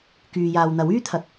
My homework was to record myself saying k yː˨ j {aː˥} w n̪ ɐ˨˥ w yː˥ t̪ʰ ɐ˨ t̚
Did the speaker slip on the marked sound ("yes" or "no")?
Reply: yes